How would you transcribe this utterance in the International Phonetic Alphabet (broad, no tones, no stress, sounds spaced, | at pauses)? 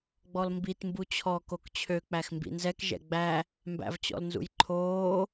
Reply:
ɡ͡b ɔ l m b i t m b u t͡ɕʰ ɔ k o k t͡ɕʰ ø k͡p æ x m b ḭ n z ɛ k ʒ ɛ̰ ɡ͡b æ | m b æ̰ v t͡ɕ ɔ̰ l n z ṵ j ǃʰ oː